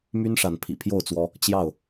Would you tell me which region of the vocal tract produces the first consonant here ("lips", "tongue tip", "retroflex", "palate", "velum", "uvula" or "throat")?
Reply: lips